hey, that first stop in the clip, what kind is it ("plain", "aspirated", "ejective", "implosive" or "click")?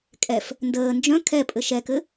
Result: ejective